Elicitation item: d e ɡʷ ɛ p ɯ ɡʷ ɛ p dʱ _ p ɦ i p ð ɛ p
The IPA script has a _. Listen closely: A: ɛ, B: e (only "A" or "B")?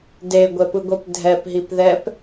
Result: A